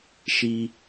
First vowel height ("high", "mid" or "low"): high